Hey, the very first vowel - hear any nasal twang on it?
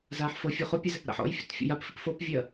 no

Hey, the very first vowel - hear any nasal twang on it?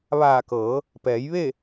no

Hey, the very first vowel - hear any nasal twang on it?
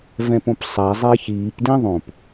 yes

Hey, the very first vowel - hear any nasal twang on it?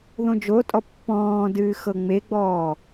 yes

